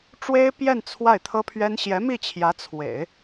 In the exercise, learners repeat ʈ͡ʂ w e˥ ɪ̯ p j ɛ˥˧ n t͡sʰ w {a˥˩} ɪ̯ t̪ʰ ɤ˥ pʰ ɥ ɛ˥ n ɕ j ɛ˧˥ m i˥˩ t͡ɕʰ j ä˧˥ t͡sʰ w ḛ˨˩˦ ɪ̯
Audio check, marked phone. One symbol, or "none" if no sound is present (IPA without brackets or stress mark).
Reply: a˥˩